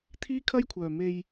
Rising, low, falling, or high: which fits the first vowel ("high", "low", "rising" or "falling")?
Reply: high